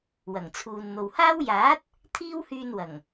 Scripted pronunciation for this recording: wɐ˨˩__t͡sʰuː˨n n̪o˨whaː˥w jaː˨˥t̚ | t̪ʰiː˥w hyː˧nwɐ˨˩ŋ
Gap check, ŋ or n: ŋ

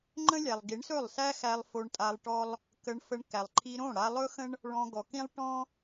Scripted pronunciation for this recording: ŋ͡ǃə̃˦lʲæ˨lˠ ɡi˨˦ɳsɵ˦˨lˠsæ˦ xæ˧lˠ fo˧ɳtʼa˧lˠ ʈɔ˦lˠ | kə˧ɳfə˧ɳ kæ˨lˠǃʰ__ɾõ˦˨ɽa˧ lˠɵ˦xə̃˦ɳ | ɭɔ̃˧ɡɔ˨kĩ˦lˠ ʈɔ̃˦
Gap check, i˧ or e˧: i˧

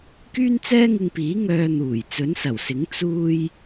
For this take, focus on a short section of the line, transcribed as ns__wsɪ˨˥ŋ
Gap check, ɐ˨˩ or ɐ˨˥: ɐ˨˩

